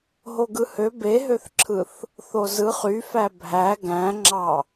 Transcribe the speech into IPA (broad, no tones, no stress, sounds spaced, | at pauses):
ɦ o ɡ ɯ h ø b e ɦ ø θ ǁʰ ɯ θ | θ o z ɯ χ y f æ bʱ æ ɡ æ̃ ŋ͡ǁ ɑ